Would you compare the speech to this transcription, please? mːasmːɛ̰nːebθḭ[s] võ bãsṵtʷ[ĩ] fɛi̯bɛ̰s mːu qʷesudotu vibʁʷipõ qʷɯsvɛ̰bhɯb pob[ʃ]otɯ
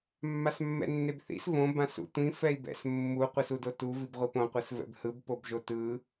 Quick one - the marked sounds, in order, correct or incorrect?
correct, correct, incorrect

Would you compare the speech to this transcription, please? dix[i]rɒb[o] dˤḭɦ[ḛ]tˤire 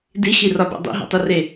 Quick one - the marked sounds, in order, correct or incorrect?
correct, incorrect, correct

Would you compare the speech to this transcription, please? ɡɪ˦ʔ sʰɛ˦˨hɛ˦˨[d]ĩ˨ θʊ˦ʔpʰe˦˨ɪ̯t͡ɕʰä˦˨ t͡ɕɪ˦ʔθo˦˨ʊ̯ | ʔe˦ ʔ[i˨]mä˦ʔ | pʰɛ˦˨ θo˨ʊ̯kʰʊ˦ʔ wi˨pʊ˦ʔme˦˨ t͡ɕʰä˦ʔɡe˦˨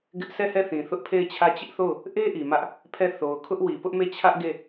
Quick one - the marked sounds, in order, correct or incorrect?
incorrect, correct

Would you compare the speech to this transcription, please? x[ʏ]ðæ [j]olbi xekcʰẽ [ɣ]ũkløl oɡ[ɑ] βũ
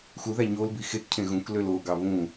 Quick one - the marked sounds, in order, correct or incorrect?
incorrect, incorrect, correct, correct

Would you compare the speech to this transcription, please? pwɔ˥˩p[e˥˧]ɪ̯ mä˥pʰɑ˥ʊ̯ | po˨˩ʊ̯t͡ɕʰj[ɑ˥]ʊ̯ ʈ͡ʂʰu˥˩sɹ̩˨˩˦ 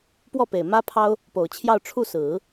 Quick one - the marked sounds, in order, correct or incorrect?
incorrect, incorrect

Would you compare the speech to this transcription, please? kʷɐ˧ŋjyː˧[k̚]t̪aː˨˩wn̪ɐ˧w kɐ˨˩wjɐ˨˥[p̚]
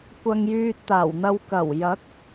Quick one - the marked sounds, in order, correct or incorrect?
incorrect, incorrect

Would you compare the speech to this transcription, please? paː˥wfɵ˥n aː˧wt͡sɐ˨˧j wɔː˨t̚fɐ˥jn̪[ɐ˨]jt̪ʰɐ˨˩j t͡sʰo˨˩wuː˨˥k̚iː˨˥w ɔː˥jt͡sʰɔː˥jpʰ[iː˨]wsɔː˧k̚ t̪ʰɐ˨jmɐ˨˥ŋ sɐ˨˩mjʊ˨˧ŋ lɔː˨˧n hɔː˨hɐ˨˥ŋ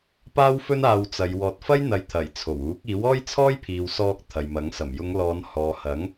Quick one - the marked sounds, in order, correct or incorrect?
correct, correct

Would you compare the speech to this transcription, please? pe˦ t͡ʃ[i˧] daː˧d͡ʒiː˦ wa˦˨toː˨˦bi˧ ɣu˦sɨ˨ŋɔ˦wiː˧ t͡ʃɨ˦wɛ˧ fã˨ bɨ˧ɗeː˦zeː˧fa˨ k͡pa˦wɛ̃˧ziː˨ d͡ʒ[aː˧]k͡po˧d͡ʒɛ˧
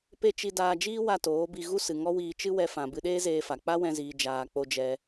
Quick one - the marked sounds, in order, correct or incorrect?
correct, incorrect

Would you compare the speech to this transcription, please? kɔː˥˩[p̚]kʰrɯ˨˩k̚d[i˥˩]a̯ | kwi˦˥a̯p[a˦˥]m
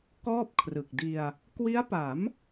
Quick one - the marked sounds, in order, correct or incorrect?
correct, incorrect, incorrect

